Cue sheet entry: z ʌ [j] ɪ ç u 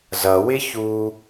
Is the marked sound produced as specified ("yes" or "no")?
no